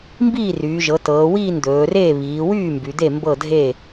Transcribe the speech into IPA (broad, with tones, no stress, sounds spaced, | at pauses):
m b iː˥˩ r yː˩˧ ʒ ɤ˩˧ t ɤː˩˧ w iː˥˩ n d̪ ɵː˩˧ r eː˥˩ β iː˩˧ w yː˥˩ m b y˩˧ d̪ e˥˩ m b ɤ˥˩ dʱ e˥˩